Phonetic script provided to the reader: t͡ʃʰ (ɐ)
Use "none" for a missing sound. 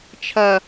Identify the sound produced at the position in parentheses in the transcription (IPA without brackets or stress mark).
ɐ